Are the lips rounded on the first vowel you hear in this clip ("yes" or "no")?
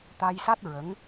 no